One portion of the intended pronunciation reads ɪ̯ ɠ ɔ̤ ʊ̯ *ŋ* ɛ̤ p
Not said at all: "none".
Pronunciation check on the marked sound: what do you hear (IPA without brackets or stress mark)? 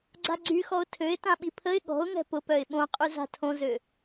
ŋ